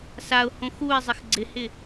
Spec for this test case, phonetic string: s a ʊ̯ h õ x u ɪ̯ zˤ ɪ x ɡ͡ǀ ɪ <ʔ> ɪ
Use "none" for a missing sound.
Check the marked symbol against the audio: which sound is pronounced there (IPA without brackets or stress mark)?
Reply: h